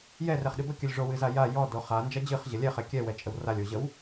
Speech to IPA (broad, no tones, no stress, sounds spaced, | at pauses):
j ɛ r ɛ χ ɗ ɨ b ə kʲ ɵ lʲ ʐ o w ɨ z a j a j ɔ d o χ a n d͡ʒ ɐ d͡ʑ ɨ χ ʑ ə lʲ ɛ χ ɛ kʲ ɛ w ɛ t͡ʃʼ ə w r a lʲ o ʑ ə w